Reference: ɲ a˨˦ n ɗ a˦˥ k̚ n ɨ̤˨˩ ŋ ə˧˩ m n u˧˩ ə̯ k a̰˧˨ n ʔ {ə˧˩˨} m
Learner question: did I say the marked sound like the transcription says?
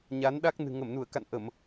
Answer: yes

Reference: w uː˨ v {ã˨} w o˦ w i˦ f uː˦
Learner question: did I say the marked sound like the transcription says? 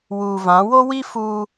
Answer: no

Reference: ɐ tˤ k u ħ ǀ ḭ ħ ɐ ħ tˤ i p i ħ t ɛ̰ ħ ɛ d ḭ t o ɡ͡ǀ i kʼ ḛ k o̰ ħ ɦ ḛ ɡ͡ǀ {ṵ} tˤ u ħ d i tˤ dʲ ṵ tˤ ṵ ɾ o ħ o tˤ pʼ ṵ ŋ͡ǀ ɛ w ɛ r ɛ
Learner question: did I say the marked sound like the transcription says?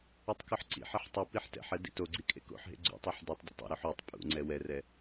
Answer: yes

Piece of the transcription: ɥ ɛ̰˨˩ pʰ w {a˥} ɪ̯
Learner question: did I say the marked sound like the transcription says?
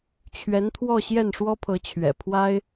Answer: yes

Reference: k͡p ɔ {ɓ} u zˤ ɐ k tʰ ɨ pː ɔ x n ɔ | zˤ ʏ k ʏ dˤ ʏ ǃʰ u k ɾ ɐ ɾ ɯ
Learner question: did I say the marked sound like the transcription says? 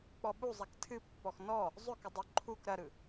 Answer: yes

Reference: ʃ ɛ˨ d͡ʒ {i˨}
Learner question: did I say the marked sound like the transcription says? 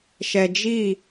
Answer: no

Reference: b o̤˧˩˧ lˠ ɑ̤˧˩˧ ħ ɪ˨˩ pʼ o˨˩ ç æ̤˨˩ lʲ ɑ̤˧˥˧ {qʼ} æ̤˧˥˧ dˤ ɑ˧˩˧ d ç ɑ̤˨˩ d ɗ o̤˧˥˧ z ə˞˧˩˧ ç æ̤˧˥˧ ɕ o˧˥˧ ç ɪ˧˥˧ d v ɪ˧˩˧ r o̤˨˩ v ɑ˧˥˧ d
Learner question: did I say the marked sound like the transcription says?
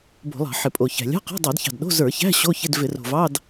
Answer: no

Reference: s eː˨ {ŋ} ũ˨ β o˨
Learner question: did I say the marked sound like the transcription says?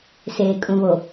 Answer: no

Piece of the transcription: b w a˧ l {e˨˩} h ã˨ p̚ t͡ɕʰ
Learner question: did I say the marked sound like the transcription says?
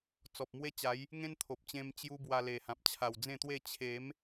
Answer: yes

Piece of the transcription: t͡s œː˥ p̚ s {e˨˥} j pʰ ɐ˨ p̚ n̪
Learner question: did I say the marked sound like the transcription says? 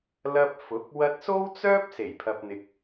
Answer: no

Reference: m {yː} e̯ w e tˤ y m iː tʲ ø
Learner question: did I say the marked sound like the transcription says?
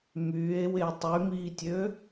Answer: yes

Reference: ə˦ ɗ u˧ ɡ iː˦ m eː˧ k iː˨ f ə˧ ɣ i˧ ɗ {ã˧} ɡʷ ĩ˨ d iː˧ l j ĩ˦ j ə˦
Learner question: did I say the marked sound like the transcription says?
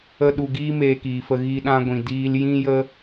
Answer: yes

